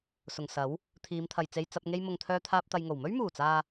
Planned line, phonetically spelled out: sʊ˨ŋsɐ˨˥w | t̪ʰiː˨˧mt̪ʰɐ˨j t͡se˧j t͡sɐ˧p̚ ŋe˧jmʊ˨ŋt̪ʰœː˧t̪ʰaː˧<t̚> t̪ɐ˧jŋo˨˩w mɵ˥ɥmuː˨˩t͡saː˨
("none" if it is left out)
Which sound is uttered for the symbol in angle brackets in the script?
p̚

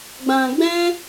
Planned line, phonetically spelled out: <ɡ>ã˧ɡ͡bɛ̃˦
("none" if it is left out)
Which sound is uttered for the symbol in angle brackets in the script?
ɡ͡b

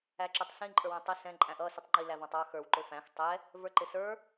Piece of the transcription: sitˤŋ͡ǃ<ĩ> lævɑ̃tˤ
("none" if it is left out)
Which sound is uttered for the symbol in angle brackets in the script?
i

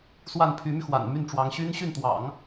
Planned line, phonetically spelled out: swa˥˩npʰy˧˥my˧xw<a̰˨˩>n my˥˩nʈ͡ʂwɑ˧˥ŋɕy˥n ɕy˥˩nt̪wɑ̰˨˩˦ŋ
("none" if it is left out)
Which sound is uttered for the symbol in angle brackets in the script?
a̰˨˩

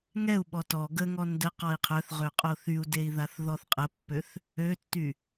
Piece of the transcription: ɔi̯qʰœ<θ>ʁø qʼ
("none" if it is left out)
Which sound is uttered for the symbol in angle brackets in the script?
θ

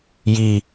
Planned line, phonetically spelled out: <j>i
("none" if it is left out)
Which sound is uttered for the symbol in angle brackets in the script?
j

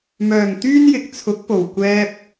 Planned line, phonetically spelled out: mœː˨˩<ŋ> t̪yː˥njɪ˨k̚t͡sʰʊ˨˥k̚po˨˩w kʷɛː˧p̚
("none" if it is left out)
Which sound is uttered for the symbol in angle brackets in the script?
ŋ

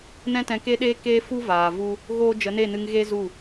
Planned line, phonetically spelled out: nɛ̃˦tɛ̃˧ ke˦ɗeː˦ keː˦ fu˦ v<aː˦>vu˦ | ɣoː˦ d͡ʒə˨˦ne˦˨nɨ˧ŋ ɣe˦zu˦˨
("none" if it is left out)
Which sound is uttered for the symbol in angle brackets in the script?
aː˨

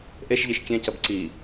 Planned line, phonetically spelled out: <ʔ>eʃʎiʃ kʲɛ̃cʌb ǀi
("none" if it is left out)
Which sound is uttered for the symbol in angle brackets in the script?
ʔ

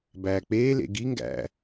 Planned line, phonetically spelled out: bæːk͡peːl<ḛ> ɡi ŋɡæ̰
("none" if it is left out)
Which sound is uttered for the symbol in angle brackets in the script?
ḛ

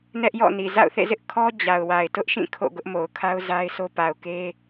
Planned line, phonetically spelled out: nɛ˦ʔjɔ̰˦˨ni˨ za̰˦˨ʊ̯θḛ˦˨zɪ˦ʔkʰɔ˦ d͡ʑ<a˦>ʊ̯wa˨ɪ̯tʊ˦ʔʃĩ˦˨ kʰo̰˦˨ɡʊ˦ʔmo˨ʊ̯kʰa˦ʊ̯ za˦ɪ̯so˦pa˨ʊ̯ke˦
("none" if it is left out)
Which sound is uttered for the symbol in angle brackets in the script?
a˨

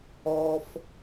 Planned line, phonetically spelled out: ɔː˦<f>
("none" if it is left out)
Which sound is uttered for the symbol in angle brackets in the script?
f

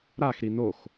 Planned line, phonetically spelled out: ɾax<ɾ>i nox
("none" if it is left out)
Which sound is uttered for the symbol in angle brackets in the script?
ɾ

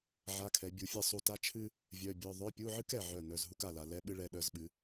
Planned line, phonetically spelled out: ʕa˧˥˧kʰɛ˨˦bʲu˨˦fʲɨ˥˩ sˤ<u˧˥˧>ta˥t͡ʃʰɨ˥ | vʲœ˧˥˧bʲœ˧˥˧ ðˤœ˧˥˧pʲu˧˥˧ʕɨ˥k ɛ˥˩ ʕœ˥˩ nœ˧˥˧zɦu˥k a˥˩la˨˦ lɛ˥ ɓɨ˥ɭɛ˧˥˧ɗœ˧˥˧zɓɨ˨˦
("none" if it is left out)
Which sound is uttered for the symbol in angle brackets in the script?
u˥˩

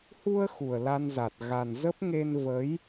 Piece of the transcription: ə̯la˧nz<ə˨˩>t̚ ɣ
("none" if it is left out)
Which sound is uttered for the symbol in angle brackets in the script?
a˨˩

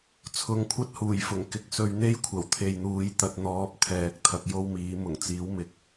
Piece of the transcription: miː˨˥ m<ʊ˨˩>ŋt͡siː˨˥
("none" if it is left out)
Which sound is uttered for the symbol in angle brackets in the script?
ʊ˨˩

